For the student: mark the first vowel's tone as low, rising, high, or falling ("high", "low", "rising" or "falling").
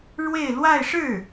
falling